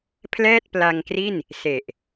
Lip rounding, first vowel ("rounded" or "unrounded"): unrounded